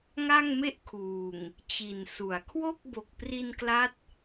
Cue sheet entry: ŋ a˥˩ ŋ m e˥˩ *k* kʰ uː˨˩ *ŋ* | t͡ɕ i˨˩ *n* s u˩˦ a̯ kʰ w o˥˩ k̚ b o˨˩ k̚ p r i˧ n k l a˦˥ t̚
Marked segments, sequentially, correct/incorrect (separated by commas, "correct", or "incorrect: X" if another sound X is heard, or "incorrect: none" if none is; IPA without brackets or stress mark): incorrect: ʔ, correct, correct